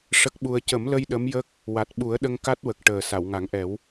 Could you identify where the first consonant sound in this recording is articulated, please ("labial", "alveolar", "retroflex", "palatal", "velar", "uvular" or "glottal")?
retroflex